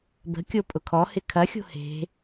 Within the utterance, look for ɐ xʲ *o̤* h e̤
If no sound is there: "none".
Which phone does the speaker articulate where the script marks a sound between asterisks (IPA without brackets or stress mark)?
o̤